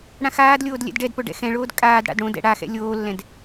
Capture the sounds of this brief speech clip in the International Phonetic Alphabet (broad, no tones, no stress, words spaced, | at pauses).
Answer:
ɽãxaːdlʲoːd lʲɛ̰dɖɛdpo ɖɛ̰xɛ̃ɭoːd kʼaːd ɽa̰dɽõdɛ̰ ɽaxɛ̰ lʲoːlːɛ̃d